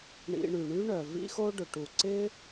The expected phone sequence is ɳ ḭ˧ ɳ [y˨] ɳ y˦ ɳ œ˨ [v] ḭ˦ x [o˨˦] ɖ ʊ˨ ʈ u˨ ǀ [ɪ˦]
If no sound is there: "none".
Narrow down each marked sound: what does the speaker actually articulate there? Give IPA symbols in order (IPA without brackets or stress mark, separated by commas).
y˨, v, o˦, ɪ˦